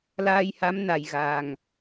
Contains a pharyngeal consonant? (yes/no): no